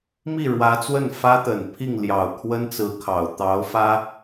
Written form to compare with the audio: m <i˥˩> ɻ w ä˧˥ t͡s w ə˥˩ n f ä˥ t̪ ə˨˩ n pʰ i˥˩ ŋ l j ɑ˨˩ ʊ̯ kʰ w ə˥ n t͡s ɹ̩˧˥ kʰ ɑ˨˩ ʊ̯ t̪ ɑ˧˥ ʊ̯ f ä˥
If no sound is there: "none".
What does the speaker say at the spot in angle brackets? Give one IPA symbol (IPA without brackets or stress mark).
i˥˩